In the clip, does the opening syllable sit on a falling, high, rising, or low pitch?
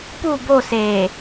falling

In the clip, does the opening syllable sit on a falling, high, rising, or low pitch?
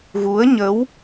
rising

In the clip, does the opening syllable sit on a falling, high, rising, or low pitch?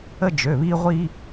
high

